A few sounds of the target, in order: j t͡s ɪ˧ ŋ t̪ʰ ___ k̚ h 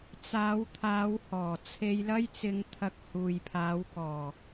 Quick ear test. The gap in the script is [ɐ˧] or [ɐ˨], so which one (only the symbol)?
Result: ɐ˧